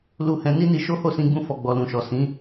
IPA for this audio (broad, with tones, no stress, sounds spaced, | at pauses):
l u˧ h ɛ̃˧ n i˦ n i˧ ʃ o˦ h o˦˨ s ĩ˧ ɡ͡b ũ˧ f ɔ˨ ɡ͡b ɔ˨ l ũ˨ ʃ ɔ˨ s ĩ˨˦